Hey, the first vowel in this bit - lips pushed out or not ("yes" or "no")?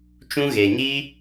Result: yes